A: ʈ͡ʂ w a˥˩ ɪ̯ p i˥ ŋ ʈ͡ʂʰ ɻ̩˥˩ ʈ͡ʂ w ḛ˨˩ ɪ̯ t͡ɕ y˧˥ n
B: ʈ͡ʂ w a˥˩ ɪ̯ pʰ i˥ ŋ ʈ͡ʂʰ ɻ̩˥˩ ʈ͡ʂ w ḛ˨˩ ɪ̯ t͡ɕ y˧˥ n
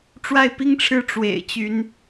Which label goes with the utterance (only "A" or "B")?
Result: A